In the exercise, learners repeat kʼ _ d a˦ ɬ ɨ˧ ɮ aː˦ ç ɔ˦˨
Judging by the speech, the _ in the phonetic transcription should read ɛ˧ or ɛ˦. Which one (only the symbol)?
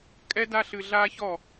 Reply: ɛ˦